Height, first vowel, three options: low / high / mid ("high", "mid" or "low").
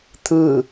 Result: high